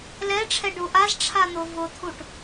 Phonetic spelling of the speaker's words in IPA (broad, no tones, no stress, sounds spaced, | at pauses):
l ɛ ʈ͡ʂʰ ɛ ɖ u ʔ a z ʈ͡ʂʰ a n̪ ʊ v ʊ t̪ʰ u ʈ